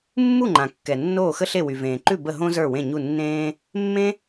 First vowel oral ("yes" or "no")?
yes